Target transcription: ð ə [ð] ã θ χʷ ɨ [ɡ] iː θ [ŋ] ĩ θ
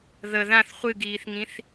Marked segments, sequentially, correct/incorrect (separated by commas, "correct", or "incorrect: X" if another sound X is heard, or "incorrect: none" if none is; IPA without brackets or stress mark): correct, correct, correct